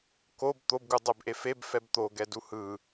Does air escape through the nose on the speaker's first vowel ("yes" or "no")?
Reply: no